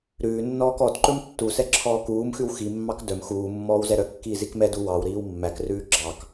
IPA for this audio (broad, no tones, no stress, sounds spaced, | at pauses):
ɾ ʉː nː ɔː k ɔ d ǃ ɵ m tː u s ɛ ǁʰ ɔː k uː m x ʉ w x i mː ɑ k d œ m x uː mː ɔː w z ɛ ɾ œ kː iː z i k m ɛ d u w ɑ w ɾ iː w mː æ k r ʉː ɡ͡ǁ ɑ k